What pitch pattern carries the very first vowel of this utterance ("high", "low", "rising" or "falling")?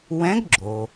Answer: rising